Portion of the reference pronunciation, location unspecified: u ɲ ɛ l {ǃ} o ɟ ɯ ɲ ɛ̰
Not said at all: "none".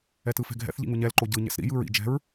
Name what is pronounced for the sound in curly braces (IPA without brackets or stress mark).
ǃ